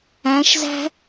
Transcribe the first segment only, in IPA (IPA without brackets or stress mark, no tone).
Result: æ̃